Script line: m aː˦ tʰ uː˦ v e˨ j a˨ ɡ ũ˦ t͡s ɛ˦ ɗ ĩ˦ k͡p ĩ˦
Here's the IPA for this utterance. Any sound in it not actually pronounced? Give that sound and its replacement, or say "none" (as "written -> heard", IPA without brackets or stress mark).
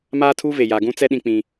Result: none